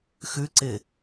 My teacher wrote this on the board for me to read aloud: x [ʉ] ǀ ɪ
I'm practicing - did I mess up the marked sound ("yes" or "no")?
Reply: no